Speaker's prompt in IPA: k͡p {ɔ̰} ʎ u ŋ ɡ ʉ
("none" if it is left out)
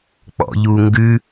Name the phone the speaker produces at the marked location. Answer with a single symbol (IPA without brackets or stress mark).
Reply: ɔ̰